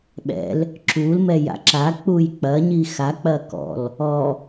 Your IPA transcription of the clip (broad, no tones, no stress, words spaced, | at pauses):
ɓɛ̰l | ǁulmɛja̰ ǁak͡puj k͡pɐɲi xak͡pɐ kɔ̰l | ɔ